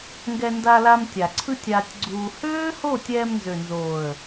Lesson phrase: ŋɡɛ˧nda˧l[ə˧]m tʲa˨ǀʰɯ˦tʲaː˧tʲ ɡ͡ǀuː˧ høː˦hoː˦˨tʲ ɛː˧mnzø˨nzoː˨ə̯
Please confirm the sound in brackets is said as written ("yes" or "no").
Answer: no